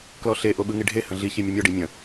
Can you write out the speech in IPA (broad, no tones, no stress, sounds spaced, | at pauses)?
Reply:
k l ɔ ɬ e ʔ o ɓ ɯ ŋ i ɖʱ e h ə̃ ɮ i ç i mʲ ə mʲ ɔ ɖ i mʲ ə̃